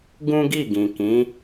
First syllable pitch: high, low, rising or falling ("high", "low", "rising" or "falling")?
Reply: high